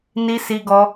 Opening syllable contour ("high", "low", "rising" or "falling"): high